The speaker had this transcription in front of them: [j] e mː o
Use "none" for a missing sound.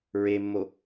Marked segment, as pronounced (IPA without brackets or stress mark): ɹ